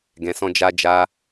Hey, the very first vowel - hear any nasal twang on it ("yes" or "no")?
yes